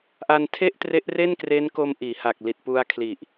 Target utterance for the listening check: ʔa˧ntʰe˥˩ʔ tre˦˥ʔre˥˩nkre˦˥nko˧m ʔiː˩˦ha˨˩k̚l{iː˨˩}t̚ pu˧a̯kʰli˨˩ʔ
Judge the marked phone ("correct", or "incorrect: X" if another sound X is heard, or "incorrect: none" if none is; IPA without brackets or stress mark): incorrect: i˨˩